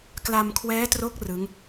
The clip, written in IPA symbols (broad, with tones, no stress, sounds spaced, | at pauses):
k l a˧ m kʰ w ɛː˦˥ t r o˦˥ k̚ r ɯ˦˥ ŋ